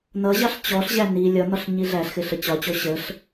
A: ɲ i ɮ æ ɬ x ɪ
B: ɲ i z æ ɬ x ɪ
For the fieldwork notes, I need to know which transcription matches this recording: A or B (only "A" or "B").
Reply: A